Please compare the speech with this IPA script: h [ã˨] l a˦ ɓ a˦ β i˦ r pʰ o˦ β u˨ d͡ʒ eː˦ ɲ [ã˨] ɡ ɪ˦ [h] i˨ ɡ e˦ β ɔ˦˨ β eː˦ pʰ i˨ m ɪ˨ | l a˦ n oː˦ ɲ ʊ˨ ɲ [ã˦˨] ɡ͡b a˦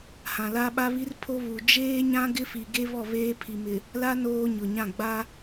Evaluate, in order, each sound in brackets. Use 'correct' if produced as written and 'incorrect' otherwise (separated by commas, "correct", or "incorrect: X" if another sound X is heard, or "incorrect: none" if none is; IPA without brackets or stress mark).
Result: correct, incorrect: ã˦, incorrect: f, correct